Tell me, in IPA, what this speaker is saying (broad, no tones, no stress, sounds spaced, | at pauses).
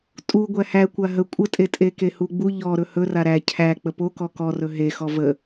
tʼ u ɡʷ æ h æ kʷ a ɦ ə kʷʼ ə tʼ e tʼ e k e h u ɡ͡b u ʎ ɔ ɾ ɵ h ɵ r a ɾ æ cʰ æ k͡p ə p o k ɔ k ɔ r ɵ ɦ e x ɔ v ə